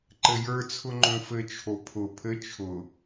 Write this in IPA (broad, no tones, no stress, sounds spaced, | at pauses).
ǃ ɘ j ə˞ t͡sʰ ʊ ŋ͡ǃ õ f ɘ t͡ʃʰ o pʰ ʊ pʰ ɘ t͡ʃʰ ʊ